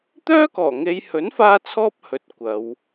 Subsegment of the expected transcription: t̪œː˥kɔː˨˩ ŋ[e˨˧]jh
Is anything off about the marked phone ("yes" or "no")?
no